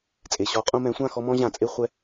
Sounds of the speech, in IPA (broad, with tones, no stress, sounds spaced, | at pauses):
t͡sʼ e˩ ɕ ɔ˨˥ qʼ ũ˦ m ɛ̃˨˥ sʷ ã˦˨ x ɔ˦ m ɔ̃˦ ʑ ã˧˩˧ t͡sʼ e˦ χʷ ɛ˦